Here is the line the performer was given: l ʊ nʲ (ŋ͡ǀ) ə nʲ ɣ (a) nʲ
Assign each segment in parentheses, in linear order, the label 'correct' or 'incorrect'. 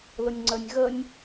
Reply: correct, incorrect

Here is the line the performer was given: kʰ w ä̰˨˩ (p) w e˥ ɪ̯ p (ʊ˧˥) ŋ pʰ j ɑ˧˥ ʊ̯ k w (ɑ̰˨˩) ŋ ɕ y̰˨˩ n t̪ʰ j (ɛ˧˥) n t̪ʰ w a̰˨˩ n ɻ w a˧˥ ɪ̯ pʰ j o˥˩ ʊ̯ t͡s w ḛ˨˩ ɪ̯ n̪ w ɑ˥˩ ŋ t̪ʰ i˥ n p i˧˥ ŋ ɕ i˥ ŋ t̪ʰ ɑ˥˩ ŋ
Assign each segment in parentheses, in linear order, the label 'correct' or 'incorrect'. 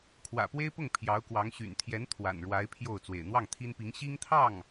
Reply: correct, incorrect, incorrect, correct

